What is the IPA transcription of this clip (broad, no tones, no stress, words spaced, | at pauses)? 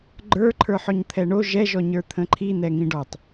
ɡ͡ǃə˞ ǃʰə˞ħɔɲt̪ʰɛɳo ʒɛ ʒɔɲə˞t̪ʰə̃ǃʰi n̪ɛŋĩɖɔtˤ